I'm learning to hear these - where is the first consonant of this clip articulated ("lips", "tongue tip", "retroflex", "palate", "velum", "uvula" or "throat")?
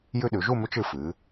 palate